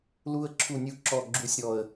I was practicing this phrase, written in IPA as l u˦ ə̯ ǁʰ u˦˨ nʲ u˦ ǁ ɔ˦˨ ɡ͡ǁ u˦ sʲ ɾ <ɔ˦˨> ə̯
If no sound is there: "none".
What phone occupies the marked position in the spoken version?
ɔ˦˨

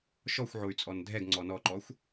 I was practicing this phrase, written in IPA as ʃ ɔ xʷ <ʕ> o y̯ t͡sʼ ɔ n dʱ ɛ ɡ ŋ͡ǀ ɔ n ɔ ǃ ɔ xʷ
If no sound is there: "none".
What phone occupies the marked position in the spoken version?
ʕ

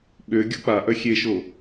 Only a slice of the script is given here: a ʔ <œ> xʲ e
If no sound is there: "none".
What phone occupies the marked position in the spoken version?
œ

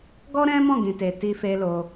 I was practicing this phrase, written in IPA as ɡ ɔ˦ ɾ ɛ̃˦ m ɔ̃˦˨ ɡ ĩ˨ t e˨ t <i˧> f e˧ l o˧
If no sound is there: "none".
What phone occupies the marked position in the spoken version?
i˧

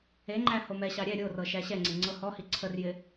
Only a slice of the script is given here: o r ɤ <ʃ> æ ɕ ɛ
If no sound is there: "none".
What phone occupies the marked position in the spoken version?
ʃ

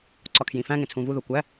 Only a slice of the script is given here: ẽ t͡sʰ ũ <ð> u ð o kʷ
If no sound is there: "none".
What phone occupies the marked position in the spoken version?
v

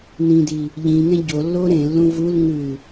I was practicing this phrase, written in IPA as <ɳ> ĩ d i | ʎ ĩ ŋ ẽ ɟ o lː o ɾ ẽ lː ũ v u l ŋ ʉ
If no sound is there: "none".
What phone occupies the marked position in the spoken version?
n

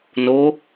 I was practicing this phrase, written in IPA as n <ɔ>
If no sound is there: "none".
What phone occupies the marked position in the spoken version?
o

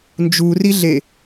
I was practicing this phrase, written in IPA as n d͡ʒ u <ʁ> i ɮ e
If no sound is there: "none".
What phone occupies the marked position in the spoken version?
r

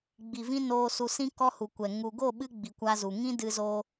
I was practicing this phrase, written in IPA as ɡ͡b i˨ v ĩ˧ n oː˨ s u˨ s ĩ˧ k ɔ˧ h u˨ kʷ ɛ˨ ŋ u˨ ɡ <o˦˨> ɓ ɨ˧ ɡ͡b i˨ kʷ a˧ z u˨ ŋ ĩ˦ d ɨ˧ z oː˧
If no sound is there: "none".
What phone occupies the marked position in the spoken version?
o˦˨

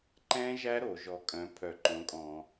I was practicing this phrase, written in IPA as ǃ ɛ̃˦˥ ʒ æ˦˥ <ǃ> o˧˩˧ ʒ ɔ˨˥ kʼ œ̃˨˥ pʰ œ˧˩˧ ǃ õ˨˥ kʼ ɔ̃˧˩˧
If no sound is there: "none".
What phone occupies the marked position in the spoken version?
ɾ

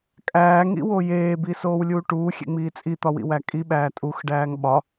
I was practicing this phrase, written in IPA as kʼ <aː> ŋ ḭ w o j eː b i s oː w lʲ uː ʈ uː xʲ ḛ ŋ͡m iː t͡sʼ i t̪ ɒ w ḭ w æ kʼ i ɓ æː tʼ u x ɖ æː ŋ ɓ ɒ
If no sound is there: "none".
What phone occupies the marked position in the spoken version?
æː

